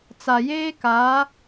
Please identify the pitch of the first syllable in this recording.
low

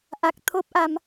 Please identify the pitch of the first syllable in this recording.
low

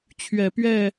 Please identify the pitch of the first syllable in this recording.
low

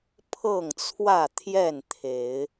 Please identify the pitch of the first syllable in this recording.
falling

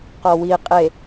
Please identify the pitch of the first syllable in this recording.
low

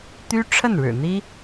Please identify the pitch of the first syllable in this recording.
high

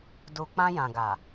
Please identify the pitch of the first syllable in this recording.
low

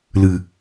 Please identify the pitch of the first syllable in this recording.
low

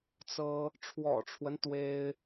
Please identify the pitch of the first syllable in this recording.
high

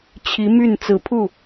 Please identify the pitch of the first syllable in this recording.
rising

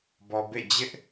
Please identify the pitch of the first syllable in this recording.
low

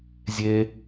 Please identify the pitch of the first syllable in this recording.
high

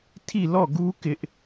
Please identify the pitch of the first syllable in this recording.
falling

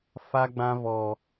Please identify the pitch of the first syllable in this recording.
high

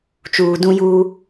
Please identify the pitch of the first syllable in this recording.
low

